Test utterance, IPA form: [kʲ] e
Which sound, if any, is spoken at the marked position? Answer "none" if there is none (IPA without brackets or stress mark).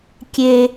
kʲ